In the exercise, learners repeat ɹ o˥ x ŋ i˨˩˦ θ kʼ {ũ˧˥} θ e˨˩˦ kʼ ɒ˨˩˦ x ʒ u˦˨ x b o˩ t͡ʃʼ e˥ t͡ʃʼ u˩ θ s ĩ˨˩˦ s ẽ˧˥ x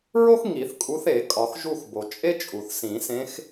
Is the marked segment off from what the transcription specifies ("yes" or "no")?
yes